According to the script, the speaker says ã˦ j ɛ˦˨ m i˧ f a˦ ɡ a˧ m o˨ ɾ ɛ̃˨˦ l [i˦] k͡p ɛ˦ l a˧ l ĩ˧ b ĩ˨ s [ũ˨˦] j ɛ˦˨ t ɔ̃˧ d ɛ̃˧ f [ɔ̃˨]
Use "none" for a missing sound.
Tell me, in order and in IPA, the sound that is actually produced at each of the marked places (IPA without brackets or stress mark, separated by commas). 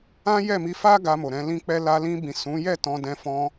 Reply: ĩ˦, ũ˨˦, ɔ̃˧